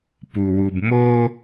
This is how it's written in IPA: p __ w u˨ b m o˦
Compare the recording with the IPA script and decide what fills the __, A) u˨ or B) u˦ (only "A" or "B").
A